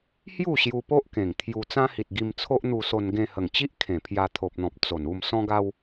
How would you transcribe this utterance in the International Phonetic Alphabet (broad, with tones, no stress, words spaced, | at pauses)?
hju˥˧ɕju˧po˦ʔkẽ˨˩ŋ t̪ʰju˧ t͡sã˦hi˨t̚ ɡi˧mt͡sʰo˦ʔn̪u˧so˧n ɡẽ˧hə˨˩ŋt͡ɕi˦ʔ kʰẽ˨˩pʰja˧t̪ʰo˨p̚n̪ɔ̃˨p̚ t͡so˨˩n u˥˧msɔ̃˦ɡa˦w